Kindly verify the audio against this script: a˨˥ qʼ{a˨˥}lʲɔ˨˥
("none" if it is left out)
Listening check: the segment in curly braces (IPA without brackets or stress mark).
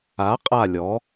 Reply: a˦˨